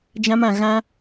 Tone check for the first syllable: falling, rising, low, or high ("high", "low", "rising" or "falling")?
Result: high